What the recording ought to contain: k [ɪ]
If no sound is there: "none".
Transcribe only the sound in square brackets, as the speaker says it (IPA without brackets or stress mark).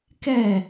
ɛ